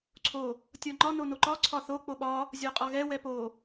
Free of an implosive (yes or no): no